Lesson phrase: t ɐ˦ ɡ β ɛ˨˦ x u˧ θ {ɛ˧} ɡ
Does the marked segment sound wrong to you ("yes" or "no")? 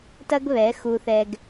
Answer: no